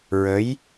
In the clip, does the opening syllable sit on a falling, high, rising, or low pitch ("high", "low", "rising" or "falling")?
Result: rising